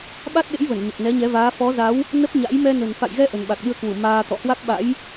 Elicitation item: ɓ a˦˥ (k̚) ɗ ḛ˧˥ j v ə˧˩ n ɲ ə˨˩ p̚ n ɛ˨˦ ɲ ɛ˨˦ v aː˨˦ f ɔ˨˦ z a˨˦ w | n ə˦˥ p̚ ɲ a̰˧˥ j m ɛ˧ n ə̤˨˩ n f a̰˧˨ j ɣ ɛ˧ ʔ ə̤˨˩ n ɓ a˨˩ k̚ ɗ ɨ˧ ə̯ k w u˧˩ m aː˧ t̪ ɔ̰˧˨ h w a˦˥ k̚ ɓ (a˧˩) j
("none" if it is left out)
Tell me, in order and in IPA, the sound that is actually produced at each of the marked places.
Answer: t̚, a̰˧˥

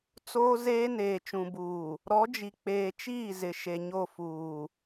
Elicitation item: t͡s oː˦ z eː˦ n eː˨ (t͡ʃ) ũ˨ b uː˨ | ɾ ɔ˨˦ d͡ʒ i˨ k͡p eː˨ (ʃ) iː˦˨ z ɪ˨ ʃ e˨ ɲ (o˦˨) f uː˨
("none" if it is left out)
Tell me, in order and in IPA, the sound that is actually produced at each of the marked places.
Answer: t͡ʃ, t͡ʃ, o˦˨

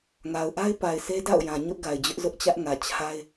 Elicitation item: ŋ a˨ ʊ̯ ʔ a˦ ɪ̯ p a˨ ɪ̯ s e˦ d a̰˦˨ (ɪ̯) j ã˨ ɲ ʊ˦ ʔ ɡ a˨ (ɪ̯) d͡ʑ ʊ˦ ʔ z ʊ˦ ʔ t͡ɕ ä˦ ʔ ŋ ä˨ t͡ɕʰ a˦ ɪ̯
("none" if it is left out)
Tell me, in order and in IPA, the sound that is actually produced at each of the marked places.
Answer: ʊ̯, ɪ̯

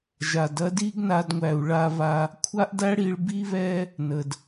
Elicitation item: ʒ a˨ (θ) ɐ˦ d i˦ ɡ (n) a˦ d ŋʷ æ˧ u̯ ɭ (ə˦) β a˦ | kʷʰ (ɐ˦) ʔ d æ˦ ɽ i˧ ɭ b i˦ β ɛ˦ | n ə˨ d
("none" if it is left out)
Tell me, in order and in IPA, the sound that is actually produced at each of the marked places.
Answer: d, n, a˦, a˦

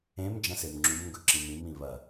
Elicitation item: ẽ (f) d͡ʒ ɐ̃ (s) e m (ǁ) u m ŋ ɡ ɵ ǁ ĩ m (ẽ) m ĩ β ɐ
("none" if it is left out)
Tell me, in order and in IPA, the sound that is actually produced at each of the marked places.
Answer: m, s, ŋ͡ǁ, ĩ

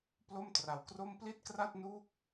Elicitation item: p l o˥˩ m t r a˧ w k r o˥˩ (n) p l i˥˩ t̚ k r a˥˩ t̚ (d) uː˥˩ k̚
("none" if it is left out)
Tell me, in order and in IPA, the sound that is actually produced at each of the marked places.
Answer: m, n

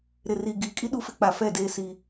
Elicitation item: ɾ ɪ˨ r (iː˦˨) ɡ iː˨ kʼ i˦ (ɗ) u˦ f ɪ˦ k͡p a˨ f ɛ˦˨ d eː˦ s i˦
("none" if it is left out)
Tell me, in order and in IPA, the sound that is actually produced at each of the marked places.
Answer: iː˨, ɗ

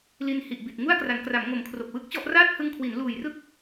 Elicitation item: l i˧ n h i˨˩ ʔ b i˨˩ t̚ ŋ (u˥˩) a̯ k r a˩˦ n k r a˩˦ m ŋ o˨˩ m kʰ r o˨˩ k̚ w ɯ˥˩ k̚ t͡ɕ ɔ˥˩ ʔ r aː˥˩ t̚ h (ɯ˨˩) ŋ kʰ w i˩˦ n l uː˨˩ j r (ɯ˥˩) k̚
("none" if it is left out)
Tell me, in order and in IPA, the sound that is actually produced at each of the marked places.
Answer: u˥˩, ɯ˧, ɯ˥˩

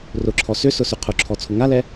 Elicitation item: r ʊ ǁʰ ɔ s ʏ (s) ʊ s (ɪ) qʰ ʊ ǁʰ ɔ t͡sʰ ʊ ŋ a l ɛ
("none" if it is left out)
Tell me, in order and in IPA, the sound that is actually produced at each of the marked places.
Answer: s, ʏ

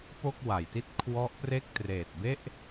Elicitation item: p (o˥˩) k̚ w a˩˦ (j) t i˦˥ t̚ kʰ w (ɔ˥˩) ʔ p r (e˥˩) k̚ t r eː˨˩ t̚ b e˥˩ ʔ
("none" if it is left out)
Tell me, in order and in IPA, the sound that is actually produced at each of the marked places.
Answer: o˥˩, j, ɔ˦˥, e˥˩

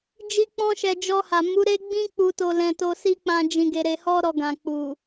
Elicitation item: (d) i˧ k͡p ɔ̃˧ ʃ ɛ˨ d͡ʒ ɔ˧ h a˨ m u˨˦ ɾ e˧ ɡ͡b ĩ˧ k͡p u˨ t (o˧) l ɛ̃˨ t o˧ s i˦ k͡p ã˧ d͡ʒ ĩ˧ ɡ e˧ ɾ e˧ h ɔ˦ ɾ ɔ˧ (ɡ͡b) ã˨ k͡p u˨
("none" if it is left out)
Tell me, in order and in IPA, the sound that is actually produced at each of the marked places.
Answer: d͡ʒ, o˨, ɡ

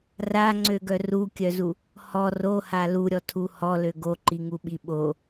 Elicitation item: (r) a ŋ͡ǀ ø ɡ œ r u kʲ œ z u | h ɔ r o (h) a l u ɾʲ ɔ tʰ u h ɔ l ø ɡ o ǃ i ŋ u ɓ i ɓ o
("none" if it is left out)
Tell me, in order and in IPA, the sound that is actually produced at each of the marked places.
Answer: r, h

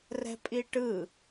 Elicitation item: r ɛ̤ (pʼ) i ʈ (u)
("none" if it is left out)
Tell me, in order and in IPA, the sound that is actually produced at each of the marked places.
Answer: pʼ, ɯ

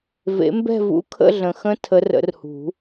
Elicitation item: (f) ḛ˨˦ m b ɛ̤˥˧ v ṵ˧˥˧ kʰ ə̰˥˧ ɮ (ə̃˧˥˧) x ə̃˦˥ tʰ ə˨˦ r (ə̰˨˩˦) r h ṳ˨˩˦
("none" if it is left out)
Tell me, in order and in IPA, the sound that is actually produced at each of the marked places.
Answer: v, ə̃˨˩, ə̰˨˩˦

